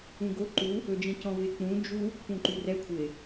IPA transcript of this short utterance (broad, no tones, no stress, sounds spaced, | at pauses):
ũ ɡ o ǃ u | ɵ d͡ʒ ĩ c ɔ̃ v ɪ k͡p ũ d͡ʒ u | p ũ ǃ y r ɛ kʷʰ ɪ